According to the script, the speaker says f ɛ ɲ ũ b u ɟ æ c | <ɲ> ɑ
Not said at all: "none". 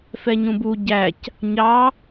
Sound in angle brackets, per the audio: ɲ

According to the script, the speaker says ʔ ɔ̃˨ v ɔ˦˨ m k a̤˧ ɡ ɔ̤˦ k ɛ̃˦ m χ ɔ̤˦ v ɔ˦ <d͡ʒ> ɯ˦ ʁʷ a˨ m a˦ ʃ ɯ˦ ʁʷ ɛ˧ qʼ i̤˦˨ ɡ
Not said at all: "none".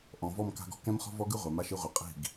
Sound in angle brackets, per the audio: ɡ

